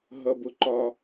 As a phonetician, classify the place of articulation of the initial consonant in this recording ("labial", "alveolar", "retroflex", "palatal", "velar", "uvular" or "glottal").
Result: glottal